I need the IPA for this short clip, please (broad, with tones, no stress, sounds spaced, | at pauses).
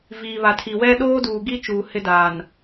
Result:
v iː˨ β a˨ tʰ i˨ w ɛ˦ ɗ oː˦ d uː˨ ɡ i˦ t͡ʃ uː˨ h ɪ˦ d aː˨ n